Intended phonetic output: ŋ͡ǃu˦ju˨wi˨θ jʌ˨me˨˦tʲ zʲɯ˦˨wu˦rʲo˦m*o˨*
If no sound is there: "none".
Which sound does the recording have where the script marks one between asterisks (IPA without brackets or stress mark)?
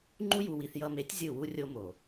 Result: o˨